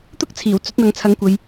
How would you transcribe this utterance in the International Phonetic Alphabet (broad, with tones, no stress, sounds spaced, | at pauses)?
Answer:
t̪ ʊ˥ k̚ t͡sʰ iː˨˩ w t͡s ɵ˨˥ t̚ n̪ ɐ˨˧ ŋ t͡sʰ ɐ˨˥ ŋ kʷ ɐ˨ j